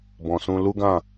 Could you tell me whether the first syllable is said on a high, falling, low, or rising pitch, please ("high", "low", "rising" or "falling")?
low